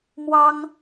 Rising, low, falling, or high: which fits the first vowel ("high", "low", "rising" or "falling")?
high